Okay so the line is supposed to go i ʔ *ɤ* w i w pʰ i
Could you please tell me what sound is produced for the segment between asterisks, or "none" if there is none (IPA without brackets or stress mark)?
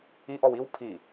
ɔ